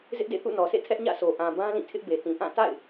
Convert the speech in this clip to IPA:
z ɪ˦ ʔ d ḛ˦˨ θ ṵ˦˨ n ɔ˨ sʰ ḛ˦˨ tʰ ɛ˦ ʔ ɲ ä̰˦˨ sʰ o˨ ʔ ã˨ b ã˦ l ĩ˦˨ tʰ ɪ˦ ʔ b e˨ t ĩ˨ ʔ ã˦˨ t a̰˦˨ ɪ̯

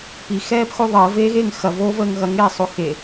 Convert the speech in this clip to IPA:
p i x ɛː p x o ðˤ əː v eː ɣ eː ŋ x ɐ v oː v əː ŋ ɣ ɐ ŋ eː sˤ o x e

